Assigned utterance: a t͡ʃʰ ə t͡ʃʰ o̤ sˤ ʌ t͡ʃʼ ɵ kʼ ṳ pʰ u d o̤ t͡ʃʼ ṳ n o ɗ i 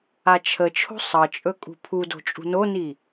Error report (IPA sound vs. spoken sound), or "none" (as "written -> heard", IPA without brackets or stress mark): ɗ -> n